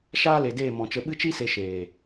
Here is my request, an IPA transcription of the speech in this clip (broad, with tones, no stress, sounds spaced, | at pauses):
ʃ aː˦ l e˨ d eː˦˨ m ɔ̃˨ t͡ʃ ə˧ ɓ ɨ˧ t͡ʃ i˧ s e˨ ʃ eː˨